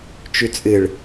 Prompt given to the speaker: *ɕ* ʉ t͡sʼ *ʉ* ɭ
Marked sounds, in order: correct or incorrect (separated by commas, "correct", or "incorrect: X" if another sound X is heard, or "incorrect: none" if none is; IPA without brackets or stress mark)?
incorrect: t͡ʃ, incorrect: ɨ